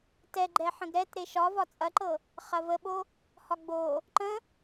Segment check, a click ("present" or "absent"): present